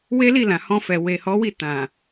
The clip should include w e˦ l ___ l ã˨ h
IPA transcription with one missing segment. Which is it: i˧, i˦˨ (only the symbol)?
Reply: i˦˨